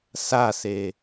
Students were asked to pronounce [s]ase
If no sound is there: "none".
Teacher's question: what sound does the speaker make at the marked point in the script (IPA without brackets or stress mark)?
s